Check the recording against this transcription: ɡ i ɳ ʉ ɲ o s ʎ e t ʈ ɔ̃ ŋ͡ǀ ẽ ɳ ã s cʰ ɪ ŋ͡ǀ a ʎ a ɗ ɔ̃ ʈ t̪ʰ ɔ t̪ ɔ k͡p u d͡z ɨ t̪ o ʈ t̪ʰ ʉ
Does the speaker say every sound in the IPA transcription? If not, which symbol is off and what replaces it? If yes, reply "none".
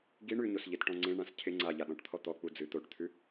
none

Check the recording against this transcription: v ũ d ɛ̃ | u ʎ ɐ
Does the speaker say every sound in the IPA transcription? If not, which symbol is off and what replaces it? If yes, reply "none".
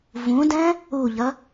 none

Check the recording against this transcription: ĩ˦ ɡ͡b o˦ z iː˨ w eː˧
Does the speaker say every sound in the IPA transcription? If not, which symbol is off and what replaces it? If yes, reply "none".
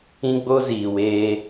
none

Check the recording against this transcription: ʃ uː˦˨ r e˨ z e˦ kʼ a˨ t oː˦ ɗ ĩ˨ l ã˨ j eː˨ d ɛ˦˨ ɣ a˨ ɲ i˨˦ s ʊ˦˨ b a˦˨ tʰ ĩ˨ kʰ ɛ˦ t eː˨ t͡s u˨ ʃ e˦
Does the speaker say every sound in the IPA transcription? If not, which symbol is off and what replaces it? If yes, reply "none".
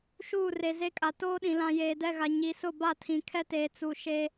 none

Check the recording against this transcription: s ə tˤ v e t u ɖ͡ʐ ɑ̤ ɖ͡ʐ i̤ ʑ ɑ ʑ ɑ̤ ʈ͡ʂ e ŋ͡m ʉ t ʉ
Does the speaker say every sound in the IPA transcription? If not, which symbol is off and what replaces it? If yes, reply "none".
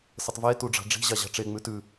none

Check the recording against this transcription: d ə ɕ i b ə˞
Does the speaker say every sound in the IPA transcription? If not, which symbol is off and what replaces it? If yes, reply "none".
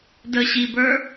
none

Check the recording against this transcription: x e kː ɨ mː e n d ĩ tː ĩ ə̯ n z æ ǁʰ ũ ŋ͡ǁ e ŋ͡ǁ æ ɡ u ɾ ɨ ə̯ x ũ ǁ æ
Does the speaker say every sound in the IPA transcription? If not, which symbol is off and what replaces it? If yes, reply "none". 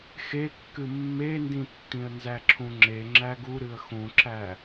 none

